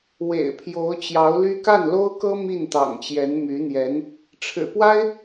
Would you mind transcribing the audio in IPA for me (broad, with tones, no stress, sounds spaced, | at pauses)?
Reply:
w ḛ˨˩ ɪ̯ pʰ j o˧˥ ʊ̯ t͡ɕ j ɑ˧˥ ʊ̯ l y˥ k a˥˩ n l o˥ ʊ̯ k ɤ˥ m i˥˩ n t̪ ɑ̰˨˩ ŋ t͡ɕ j ɛ˧˥ n m y˧˥ n̪ j ɛ˧˥ n | ʈ͡ʂʰ ɻ̩˨˩ p w a˥ ɪ̯